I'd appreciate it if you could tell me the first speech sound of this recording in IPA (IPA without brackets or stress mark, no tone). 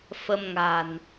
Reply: f